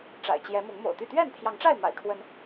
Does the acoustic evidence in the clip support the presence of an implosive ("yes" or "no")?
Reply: no